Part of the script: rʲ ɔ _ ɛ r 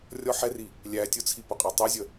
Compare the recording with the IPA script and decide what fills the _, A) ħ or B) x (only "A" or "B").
A